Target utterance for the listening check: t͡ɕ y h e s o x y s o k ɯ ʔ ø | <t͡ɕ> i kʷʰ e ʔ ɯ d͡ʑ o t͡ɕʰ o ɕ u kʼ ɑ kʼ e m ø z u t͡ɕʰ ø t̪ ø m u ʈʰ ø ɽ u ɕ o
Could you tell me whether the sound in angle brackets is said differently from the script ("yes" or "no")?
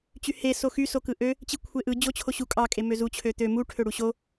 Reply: no